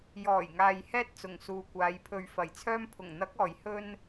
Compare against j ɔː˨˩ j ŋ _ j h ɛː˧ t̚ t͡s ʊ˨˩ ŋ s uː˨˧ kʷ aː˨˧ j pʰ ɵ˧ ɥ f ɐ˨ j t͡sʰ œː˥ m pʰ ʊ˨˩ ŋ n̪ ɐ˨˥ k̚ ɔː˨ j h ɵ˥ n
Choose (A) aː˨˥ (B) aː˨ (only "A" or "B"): B